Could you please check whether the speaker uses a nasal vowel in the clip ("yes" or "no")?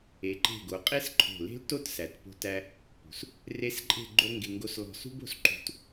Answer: no